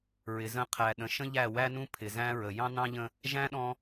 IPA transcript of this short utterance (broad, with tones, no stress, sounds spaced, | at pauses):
ɹ ɪ˨ z ə̃˦˨ qʰ æ˨ ɗ ə̃˨ ʃ ə̃˦ ʎ æ˦˨ w æ˦ n ũ˦ pʰ ɪ˨ z æ̃˦ ɹ ə˨ j ɑ̃˦ n ɑ̃˦ ʎ ə̃˦ | ʒ æ̃˦ ɗ ɔ̃˦